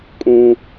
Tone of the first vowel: high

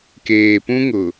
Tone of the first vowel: low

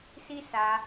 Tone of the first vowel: high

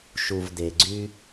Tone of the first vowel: low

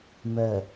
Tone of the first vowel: low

